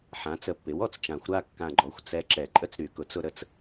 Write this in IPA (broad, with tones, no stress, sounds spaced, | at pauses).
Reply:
ħ ã˩˥ t͡s ə˨˩ pː ɪ˩˥ w ɔ˦ t͡s t͡ʃ ã˨˩˦ xʷ ɾ a˦˨ kː ã˨˩ ɡ͡ǃ ɔ˩˥ xʷ t͡s ɛ˨˩ ǁ ɛ˨˩˦ ǃʼ ə˦ t͡s ɾ y˨˩˦ k ʊ˩˥ t͡s ʊ˦ ɾ ə˦ t͡s